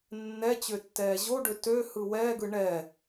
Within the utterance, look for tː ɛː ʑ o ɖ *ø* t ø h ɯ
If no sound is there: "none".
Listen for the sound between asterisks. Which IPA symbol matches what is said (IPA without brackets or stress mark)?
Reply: ø